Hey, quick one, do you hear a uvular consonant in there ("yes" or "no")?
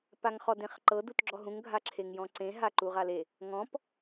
yes